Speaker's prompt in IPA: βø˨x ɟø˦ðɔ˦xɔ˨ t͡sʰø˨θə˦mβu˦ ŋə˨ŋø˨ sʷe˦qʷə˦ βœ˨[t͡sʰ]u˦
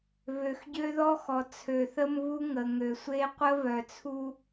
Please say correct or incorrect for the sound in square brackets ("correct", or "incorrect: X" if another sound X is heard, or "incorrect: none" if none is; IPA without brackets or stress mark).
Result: correct